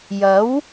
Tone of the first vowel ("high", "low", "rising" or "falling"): rising